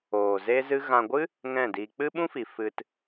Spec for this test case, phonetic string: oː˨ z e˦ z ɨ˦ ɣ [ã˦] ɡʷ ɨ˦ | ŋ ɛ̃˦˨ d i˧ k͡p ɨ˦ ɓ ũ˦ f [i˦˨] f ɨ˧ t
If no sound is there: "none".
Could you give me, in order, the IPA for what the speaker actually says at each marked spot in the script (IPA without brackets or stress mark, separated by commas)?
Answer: ã˧, i˨